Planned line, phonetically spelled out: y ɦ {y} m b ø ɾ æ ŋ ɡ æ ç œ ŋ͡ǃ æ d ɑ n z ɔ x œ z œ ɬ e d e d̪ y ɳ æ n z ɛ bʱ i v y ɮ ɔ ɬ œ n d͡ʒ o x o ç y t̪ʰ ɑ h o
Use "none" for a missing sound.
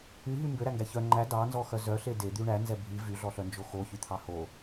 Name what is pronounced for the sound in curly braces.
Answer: y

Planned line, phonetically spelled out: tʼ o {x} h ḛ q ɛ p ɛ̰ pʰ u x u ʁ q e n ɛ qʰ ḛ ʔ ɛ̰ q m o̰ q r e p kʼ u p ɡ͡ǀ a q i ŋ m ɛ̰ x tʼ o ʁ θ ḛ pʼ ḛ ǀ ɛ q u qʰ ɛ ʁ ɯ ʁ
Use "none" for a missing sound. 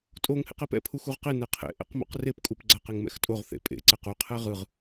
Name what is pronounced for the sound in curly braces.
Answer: ŋ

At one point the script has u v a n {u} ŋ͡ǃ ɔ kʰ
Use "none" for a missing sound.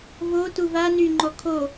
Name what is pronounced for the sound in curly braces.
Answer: y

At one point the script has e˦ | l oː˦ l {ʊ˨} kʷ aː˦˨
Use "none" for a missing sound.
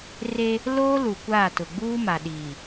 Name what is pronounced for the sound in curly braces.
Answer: u˨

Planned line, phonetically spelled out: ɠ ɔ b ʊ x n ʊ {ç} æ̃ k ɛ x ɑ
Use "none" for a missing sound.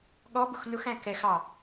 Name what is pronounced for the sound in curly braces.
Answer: x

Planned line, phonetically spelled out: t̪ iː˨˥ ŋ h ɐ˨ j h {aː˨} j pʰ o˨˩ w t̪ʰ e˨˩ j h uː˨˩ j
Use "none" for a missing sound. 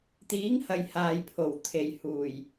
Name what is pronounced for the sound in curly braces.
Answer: aː˨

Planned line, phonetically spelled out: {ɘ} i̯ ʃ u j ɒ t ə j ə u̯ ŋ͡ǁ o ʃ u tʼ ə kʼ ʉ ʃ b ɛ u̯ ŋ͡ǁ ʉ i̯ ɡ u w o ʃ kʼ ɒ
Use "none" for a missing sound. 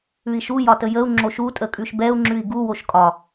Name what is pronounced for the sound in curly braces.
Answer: ʉ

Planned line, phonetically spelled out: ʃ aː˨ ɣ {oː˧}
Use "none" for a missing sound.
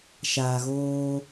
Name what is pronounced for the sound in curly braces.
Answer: oː˧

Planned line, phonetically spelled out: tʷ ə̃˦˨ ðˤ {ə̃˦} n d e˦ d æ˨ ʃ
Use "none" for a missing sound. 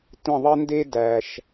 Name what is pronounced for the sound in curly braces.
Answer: ə˦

